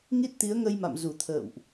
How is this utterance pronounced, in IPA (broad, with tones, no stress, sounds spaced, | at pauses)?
ŋ i˦˥ t̚ t̪ i˨˦ ə̯ ŋ ə˧ j m a̰˧˨ m z u˧˩ t̪ʰ ə̰ː˧˨ w ʔ